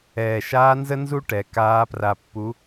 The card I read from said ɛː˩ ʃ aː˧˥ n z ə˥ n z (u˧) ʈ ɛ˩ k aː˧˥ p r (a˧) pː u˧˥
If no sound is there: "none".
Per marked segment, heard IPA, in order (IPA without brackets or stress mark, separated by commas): u˥, a˧